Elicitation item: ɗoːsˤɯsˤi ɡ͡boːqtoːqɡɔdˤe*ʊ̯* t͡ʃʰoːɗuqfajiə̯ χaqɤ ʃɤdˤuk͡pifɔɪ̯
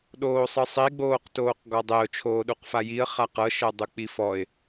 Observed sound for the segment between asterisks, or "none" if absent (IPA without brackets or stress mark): ʊ̯